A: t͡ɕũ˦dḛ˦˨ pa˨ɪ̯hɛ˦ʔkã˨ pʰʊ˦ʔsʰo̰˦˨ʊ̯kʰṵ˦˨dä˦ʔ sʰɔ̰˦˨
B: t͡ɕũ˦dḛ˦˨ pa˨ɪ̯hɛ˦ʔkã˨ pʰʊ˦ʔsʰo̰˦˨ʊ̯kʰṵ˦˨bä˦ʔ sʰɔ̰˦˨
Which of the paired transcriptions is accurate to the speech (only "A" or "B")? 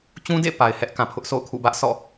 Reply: B